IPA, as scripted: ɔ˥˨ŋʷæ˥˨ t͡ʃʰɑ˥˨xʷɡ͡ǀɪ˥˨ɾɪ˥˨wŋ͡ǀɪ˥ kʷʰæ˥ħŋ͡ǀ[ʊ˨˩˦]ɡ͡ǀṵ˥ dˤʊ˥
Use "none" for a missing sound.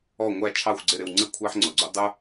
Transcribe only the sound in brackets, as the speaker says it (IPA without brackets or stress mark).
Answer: ʊ˨˩˦